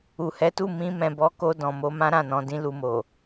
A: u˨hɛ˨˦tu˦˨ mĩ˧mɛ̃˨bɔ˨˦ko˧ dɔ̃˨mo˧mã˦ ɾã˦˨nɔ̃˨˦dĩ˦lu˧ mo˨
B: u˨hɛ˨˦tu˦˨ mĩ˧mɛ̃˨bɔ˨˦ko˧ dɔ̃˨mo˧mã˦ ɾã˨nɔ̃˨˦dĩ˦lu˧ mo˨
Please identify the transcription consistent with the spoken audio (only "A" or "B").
A